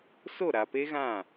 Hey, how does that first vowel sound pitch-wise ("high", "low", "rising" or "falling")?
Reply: falling